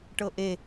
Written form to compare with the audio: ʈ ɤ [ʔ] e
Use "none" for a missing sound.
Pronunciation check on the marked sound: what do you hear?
ʔ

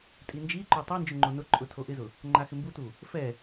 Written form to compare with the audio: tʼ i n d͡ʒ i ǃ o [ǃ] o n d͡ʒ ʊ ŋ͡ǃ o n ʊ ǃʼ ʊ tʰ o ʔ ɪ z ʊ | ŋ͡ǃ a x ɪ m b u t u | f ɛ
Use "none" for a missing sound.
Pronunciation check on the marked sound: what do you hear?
tˤ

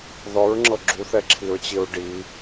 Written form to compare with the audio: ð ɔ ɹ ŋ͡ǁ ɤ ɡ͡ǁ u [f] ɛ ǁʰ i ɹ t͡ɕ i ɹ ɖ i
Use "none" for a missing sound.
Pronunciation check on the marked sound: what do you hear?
θ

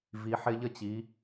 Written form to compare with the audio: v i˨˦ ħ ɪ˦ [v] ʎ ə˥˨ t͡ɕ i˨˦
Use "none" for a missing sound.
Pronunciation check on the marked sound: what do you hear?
none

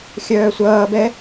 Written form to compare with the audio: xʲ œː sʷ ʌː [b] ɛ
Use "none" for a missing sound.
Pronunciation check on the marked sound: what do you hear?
b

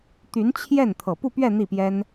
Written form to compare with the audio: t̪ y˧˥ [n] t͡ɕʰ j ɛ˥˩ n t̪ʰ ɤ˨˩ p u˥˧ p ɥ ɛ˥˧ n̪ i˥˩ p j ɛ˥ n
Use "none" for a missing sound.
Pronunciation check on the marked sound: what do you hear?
n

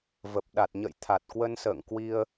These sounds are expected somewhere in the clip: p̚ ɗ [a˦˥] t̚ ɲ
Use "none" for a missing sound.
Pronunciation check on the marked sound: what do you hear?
a˨˩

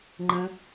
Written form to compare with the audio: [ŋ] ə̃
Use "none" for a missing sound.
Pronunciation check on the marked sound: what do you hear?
ŋ͡ǃ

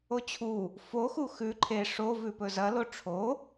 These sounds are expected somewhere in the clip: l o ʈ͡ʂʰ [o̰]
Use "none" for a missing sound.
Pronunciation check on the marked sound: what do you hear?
o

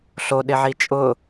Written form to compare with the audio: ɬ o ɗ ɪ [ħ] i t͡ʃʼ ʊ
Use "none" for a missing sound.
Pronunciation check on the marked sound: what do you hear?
ʕ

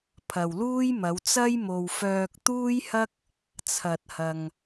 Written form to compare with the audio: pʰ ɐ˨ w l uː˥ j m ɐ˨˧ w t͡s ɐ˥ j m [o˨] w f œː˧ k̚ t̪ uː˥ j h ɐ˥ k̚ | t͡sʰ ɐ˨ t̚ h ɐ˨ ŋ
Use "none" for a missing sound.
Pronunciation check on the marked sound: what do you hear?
o˨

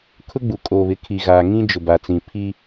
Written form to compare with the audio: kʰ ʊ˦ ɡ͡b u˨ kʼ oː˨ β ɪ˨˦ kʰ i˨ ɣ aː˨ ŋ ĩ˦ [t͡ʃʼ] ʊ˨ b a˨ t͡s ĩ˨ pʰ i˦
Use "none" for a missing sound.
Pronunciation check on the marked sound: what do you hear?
d͡ʒ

